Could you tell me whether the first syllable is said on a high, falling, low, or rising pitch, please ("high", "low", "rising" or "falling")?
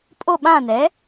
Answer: falling